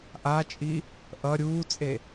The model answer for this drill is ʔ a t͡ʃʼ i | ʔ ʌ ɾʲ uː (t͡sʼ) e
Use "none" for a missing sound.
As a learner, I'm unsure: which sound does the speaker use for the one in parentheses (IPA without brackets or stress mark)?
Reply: t͡sʼ